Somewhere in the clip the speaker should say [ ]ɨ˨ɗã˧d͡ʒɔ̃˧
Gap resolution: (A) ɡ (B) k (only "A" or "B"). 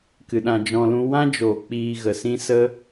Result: B